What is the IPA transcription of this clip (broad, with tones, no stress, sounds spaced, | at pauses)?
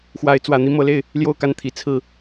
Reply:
x w a˨˦ ɪ̯ t͡s w ä˨˩ n̪ i˨˦ m ɤ˨˦ l e˥˨ ɪ̯ | l j o˥˨ ʊ̯ k a˥˨ n t̪ʰ i˨˦ t͡sʰ ɹ̩˥˨